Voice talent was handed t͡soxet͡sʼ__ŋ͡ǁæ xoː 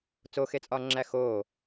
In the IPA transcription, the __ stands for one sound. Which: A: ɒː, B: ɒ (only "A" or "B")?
A